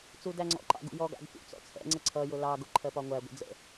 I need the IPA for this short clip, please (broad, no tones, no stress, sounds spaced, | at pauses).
t͡s u d æ ŋ͡ǀ ɔ̰ ǃ ɑ̰ ɡ ṵ j ɔ ɡ ɑ̰ ɡ p ṵ t͡s ɔ̰ t͡sʰ ɛ̰ ŋ͡ǀ ə ǀʰ ʌ j ʊ l ɑ ɡ ʊ ǃʰ ɜ p ɒ ŋʷ æ ɡʷ ə̰ d͡z ə̰